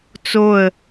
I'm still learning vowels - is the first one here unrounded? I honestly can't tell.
no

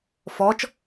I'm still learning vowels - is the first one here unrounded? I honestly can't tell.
no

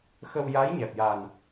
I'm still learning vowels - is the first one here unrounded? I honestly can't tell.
yes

